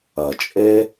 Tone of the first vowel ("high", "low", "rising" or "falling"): low